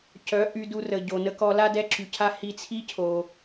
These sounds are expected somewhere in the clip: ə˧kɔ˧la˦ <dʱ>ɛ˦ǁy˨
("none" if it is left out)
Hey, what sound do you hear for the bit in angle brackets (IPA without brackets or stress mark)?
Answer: d